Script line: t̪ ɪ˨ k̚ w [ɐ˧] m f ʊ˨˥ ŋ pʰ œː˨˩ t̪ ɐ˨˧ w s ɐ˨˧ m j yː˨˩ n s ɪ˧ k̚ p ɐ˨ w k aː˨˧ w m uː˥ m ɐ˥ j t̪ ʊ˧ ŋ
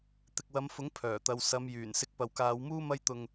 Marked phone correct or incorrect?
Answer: incorrect